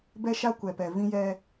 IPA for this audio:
bɛ˦ʃa˦ kʷɛ˨pɛ˨ vĩ˦jɛ˦

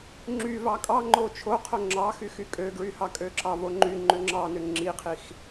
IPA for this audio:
ŋ͡ǁyvɑ kʼɑ ŋ͡ǃot͡ʃʰoqʰo ŋ͡ǁɑxyx ykʼøɡɹyhɑ kʼøǁɑvoŋ͡ǃy ŋ͡ǃøŋ͡ǁɑnø ŋ͡ǁiqʰix

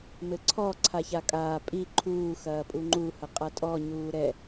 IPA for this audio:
mɘǀʰɔ ǀʰaçakʼaː pʼi ǃʰuː xɐːpʼuŋ͡ǃu hɐqʼatʼɔ ɲuːɾɛ

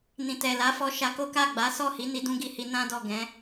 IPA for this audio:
nĩ˨tɛ˨la˨˦ fɔ˧ʃa˧ ko˦ka˦˨ɡ͡ba˨˦ sɔ˦˨hi˨˦ ni˧dũ˦ɡi˧hi˧ nã˦ dɔ˦˨ɡɛ̃˨˦

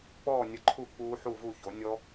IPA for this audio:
k͡pɔː˥˨nʲə˧˩ǃʰu˥˨ k͡puː˦˥ħu˥˨vu˥˨ço˩˥ nʲɔ˦˥

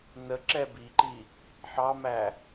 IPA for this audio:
nə ǁɛbiǃi | ħɑmæ

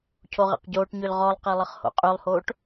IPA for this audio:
cʰoʁḛqɟoːʈɲøl ʁɔlˠqe lˠəχho̰qʼylˠhoːʈ

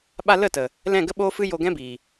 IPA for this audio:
ɓa˧lə˦˨tə˨ | lɛ̃˦˨ɡə˦ɓoː˦fɨ˦ jo˧ɡɛ̃˦biː˨

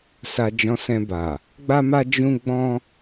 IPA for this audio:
sa˧d͡ʒɔ̃˧ sɛ̃˧ba˨ | ɡ͡ba˦ma˦ d͡ʒũ˦ɡ͡bɔ̃˦

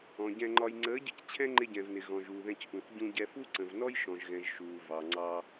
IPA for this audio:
ɔ̃˨ɟɛ̃˧ŋ͡ǃɒ˧j ŋ͡ǀəː˨˦ɟɪ˧c t͡ɕʰɛ̃˦ŋ͡ǃɪ˧ɟɛ̃˨vnɪ˨ ɣɔ̃˨ʒuː˨ðɛ̃˧c ʔũ˨θ ɟũ˧ɟɛ˧ fu˦ǀə̃˨vnɔ˦j ʃɔ̃˨ʒɣɛ̃˨ʒ ʃuː˨ vɑ˨ŋ͡ǀɑ˧

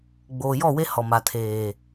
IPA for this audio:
ɡ͡boː˨jɔ˦˨we˦ hɔ˨ma˨tʰeː˨

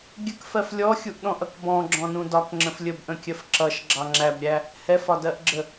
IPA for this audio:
ɡʲəkfɜf lʲɔxʲuʔɗɔ̃ʔʌk bɔ̃ɡ͡ǁɔ̃nũ dɒkŋ͡ǁə̃f lʲəbʔə̃kʲɜf ǁʌʃɡ͡ǁɑ ŋ͡ǁæbɾʲæ | hɛfɒdɜʔɡ͡ǁə

